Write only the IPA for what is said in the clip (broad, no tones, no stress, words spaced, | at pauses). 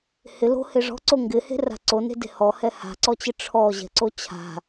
hɪ lo̤he ʐɔ̤ǀo ŋɡɪhe̤ra̤ ǀone̤de̤ hɔhɛ ha̤ǀɔt͡ɕɪ ʈ͡ʂʰɔʑɛ̤ǀo t͡ɕʰa̤